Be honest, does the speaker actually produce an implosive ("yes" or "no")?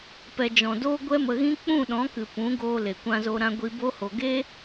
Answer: yes